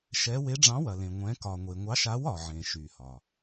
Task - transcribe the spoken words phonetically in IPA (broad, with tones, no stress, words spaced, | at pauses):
ʃɛ˧˥ we˧˥ɖ͡ʐɑ̃˧˥wɐ˨lẽ˨ ŋʷɛ̃˧˥ kɒ˨ŋʷe˨ŋʷɑ˧˥ʃa˧˥w ɒ˨ʕẽ˨ ʃy˨hɒ˨